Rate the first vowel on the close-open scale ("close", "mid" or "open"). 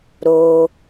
mid